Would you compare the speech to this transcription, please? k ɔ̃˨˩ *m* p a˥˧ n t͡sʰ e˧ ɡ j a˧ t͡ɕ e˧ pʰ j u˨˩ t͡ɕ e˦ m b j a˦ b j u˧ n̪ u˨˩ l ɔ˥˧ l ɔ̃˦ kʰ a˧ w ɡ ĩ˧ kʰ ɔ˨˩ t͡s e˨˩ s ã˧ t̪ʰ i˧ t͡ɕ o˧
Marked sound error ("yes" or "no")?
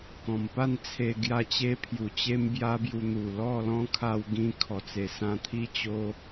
no